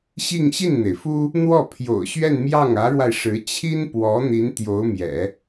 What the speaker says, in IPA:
ɕ i˥˧ ŋ ɕ i˥˩ n n̪ e˩ ɪ̯ f u˥ | n̪ w ɔ˥˩ pʰ j o̰˨˩ ʊ̯ ɕ ɥ ɛ˥˧ n m j ɑ˥˩ ŋ ä˧˥ ɻ w a˧ ɪ̯ ʂ ɻ̩˧˥ t͡ɕʰ i˥ n p w ɔ˧˥ n̪ i˧˥ n t̪ j o˧˥ ʊ̯ m j ɛ̰˨˩˦

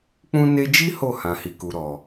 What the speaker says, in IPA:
k͡p ũ˦ n e˦ d͡ʒ i˦ h o˦˨ h ã˨ h i˨ k u˨ ɾ ɔ˨

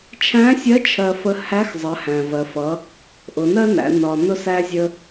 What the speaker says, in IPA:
t͡ʃʰ æ̃˧˥ sʲ ɜ˧˥ t͡ʃʰ ɜ˧ f ə˧˥ h æ˧˥ x zˤ ɜ˩˧ h æ̃˩ v ɜ˩ f ʌ˩˧ | ʔ ʊ˩˧ n ɜ˥ n æ̰˩˧ n ɒ˩ n ʊ˧ s æ˧ zʲ ə˧

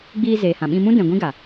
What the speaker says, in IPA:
ɡ͡b iː˧ z eː˨ h ã˨ ɓ ĩ˧ m ũ˦ d ɛ̃˨ ɡʷ ĩ˦ ɡ a˨

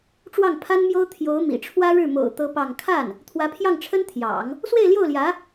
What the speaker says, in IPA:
ʈ͡ʂ w ɑ˥˩ ŋ pʰ a˥ n m j o˥ ʊ̯ t̪ʰ j o˧˥ ʊ̯ m ḭ˨˩ ʈ͡ʂʰ w ä˥ ɻ ɻ̩˥˩ m o̰˨˩ ʊ̯ t̪ ɤ˥ p ɑ˥˧ ŋ kʰ a˥˩ n | t̪ʰ w ä˧˥ pʰ j ɑ˥˩ ŋ ʈ͡ʂʰ ə˥ n t̪ʰ j ɑ̰˨˩˦ ŋ | s w e˥˧ ɪ̯ l j o˥˩ ʊ̯ l j ä˧˥

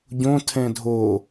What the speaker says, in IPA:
ɟ õ tʰ ɛ̃ dʱ o

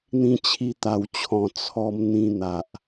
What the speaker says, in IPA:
n̪ ĩ˧ t͡ɕʰ i˧ t̪ a˨˩ w t͡ɕʰ ɔ̃˨˩ t͡sʰ ɔ˧ m n̪ ĩ˧ n̪ a˨ ʔ

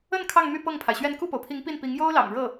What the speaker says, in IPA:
ə˥˧ n kʰ ɑ˥˧ ŋ m y˥˧ p ɤ˥˩ ŋ pʰ a˩ ɪ̯ ɕ ɥ ɛ˥˧ n k u˥˩ p o˩ ʊ̯ pʰ i˧˥ ŋ p i˥˩ n p i˧˥ ŋ j o˥ ʊ̯ l ɑ̰˨˩ ŋ ɻ ɤ˥˩

